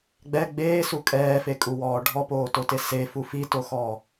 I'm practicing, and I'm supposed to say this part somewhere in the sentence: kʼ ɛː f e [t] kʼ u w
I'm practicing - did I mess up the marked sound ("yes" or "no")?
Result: yes